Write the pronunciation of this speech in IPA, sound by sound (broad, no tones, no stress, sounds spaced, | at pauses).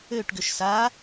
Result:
ø ʈ ɡ ʏ ʃ s a